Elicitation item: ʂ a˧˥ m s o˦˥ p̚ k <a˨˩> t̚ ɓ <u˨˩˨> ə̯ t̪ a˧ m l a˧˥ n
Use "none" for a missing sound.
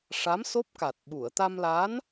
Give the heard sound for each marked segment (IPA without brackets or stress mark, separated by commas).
a˨˩, u˨˩˨